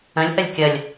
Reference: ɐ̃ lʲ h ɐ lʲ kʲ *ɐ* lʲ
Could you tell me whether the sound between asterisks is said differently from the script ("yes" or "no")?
no